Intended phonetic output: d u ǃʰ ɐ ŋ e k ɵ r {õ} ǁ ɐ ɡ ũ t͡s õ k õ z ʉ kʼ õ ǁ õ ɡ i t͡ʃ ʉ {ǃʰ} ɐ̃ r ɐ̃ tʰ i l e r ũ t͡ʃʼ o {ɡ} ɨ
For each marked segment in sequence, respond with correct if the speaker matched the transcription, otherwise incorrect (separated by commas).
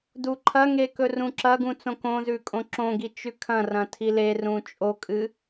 incorrect, incorrect, incorrect